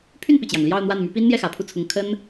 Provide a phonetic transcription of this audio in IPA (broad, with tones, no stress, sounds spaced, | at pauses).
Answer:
pʰ y˥˩ n p i˩ t͡ɕ j ɑ˩ ŋ l j ɑ˥˧ ʊ̯ n̪ w a˥˩ n m y˧˥ p i˥ n n̪ j ɛ˥˩ x ä˨˩ pʰ u˥˩ t͡sʰ ʊ˧˥ ŋ kʰ ə˥ n